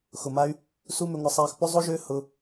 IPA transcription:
xʊ˨ma˦y̯ | su˦mʏ˧ŋʷɐ˧sˤɛː˧x pʊ˦zˤo˦ʒʏː˦ hʊ˦

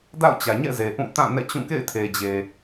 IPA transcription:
da̰˦˨ʊ̯t͡ɕä˨ɲɛ̰˦˨ ze˨ʔũ˦˨ tã˦˨ nɛ̰˦˨t͡ɕũ˦˨ kḛ˦˨ɪ̯tʰe˨d͡ʑe˨

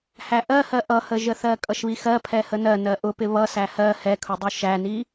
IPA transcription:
hæʔɜhɜ ʔʌhəʒəθɜ kʼʌʃβixɜpʰɛ hənɜ nɜʔʊpɪ βʌsæ hɜ hɛkʰʊdˤu ʃæni

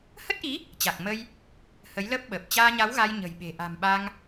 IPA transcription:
hə˦˥t̚ʔi˨˦ | t͡ɕa˨˩k̚ mə˧j | hə˨˦jləː˦˥p̚ɓəː˨˩p̚ t͡ɕaː˧ɲa˨˦wɣa˧j ɲə̤˨˩jɓe̤˨˩ ʔa̤˨˩mɓa˧ŋ

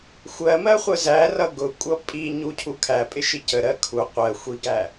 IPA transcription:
xʷɜmɜ χʷəzærʌ ɡʊkʷʼʌ pʼi ɲucʰu kʰæpʼɪ ʃicəɾɜ kʰu qʷɜ xʷiɡæ

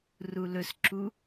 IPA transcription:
rulɵsǁu

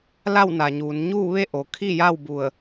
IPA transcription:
la˥˨wna˩ɲuː˩˧n ɲuː˥˨ʋe˥˨ ʔo˩kʰi˥˨ja˥˨w bu˧˩ə̯

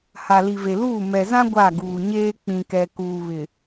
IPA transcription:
ha˨li˨ve˨luː˦˨ mɛ˨zã˦ ɡʷa˦˨ɡuː˨ɲeː˦ k͡pĩ˨kɛ˨ kuː˨βɪ˨

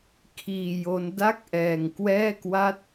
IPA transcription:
kʰiː˧jo˦˥n da˥˩k̚ʔɛː˧ŋkwɛː˥˩kwa˥˩t̚

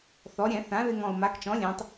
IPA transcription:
θɔ˩˧ɾʲɛ̃˧˩˧ θã˩˥ ðɪ˧ŋɔ̃˨˩ʊ̯ ma˩˥kt͡ʃɔ̃˩˥lʲɛ̃˩˧tˤ

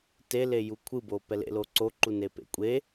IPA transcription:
tele jukʷʰɯ boːpɛlḛloː ǀoǃu nepḛ kʷʼe

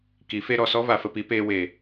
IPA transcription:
ki˨˦fe˦ ɾɔ˨sɔ˦va˧ fə˧pi˨˦peː˧we˨

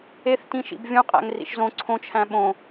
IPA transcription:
eθtĩʃḭb vʲõqʼæ̰ŋrḭʃ zõ ǀʰõt͡ʃʰæ̃ ɓõ

